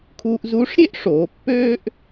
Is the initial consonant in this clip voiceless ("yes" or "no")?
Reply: yes